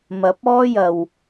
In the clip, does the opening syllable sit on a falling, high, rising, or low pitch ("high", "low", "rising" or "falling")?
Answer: rising